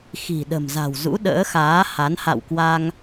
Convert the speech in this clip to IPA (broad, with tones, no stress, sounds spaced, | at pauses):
x i̤˨˩ ɗ ə̤˨˩ m z a̤˨˩ w z ṵ˧˥ ɗ ə̰ː˧˥ x aː˨˦ h a˨˦ n h a̰˧˨ w k w a˧ ŋ